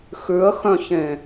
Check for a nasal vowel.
present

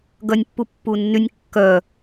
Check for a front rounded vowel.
present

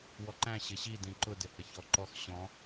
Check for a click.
present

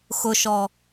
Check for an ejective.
absent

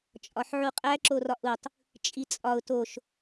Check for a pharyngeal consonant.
present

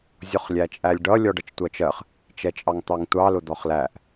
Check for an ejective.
present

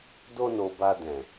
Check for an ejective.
absent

